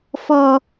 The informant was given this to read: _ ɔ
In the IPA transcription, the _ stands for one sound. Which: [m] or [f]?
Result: f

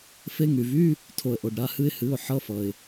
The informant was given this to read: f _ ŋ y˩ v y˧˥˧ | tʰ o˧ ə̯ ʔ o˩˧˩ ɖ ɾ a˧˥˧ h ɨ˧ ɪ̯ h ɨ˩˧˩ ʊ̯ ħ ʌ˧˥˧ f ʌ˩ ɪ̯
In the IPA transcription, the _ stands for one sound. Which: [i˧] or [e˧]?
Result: e˧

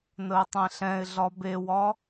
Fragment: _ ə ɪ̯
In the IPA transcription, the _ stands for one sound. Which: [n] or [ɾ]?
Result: n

